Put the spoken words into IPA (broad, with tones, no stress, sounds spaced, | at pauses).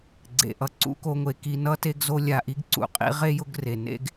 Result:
ɡ͡ǀ ḛ˩ ʔ ʌ˨ ǀ ṵ˥ k o˦ ŋʷ e˨ k i˦ n ʌ˥ t e˦ ɡ z o˦ lʲ a˨ ʔ i˦ ɡ ǀ ṵ˩ qʼ ḭ˦ ʁ e˥ j ʊ˦ ɡ r e˩ n ḛ˥ ɡ